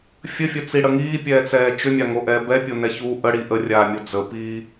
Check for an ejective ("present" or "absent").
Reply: absent